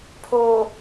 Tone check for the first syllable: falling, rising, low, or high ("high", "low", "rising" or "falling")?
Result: low